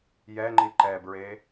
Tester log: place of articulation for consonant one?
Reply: palatal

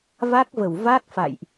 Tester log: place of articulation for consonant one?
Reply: labial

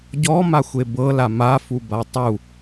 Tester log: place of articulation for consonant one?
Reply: palatal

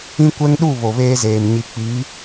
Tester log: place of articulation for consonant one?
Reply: velar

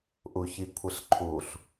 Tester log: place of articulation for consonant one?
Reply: glottal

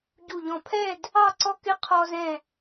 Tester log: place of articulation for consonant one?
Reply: palatal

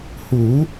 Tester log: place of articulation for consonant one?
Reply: glottal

